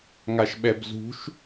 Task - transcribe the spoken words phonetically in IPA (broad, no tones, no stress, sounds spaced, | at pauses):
ŋ a ʃ ɓ ɛ b z ṳ ʃ